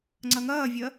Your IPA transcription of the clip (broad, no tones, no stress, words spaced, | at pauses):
ŋ͡ǀɐŋɐːvʲɜ